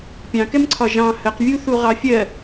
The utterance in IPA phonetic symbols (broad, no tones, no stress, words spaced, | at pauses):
pʲɑ̃kɛmǀʰɒ ʒɑ̃ həqvʲuθu ʁɑfʲɜ